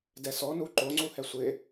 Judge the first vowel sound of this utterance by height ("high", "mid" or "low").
mid